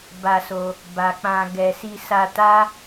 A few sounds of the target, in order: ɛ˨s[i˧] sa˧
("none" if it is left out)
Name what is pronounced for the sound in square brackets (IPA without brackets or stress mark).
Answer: i˧